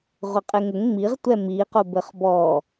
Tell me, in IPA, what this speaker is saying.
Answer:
ʁʷ ɐ qʼ e ŋ ɘ ŋ ŋ͡m i ʁ tʷ ɛ m i q o b ɘ χ b ɔ

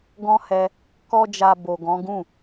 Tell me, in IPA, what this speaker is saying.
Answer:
ɡ ɔ̃˦ h ɛ˧ | k ɔ˦ d͡ʒ a˧ b o˨ ɡ ɔ̃˨˦ ɡ ũ˦˨

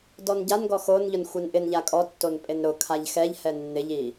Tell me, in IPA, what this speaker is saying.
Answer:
d ɔ n ɟ a n ɡ ɔ x o n ʎ ʊ n xʷ ɛ n ʔ ɪ n ʎ a kʼ ɔ tː o n pʼ e n ɾ ʊ kʰ a ʎ x ɛ ʎ h ɛ nː ɪ ʎ i

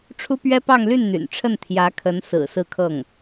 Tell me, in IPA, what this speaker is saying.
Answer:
ʈ͡ʂʰ u˥ p ɥ ɛ˥ p ɑ˥˧ ŋ l y˥˩ n n̪ y̰˨˩ n ʈ͡ʂʰ ə˥˩ n t̪ʰ j ä˧˥ kʰ ə˧˥ n s ɹ̩˨˩ s ɹ̩˥˧ kʰ ɤ˥˩ ŋ

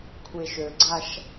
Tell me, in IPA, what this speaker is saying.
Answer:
kʷʰ e ʃ ø ɡ͡ǀ a ʃ

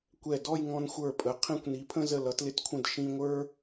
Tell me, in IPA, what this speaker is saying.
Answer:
kʷ ɛ˧˩ d ɔ˥˧ j ŋ ɔ̃˧ n xʷ ə˞˧˩ pʼ ə˩˧ qʰ ĩ˧ kʷ n i˩˧ pʰ ə̃˥˧ z ə˧˩ l ʌ˩˧ t l ɪ˧ t kʷʰ ə̃˧˩ d ʃ ĩ˧ ŋʷ ə˞˥

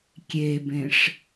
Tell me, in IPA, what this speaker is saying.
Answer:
kʲ e b ẽ ʂ

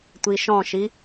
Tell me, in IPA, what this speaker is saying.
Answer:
tʷ i ʃ ɔ̃ ʃ i

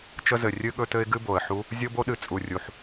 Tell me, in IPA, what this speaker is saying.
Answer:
t͡ʃ ə˦ z ɘ˨˩ rʲ ɨ˦ ɠ ɵ˦ t ɘ˦ ɪ̯ ɡ ɨ˦ b o˨˩ ə̯ ħ u˦ | zʲ o˦ b o˦ ɗ ɨ˨˩ t͡sʼ u˨˩ rʲ u˨˩ ħ

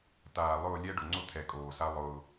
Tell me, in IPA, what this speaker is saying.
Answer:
t aː˨ lˠ ʊː˦˨ lʲ ɛ˦ ɖ ʊ˨ ŋ͡ǀ ʊ˦ t̪ʰ ɛ˨ kʼ oː˨ s a˦ lˠ ʊː˦

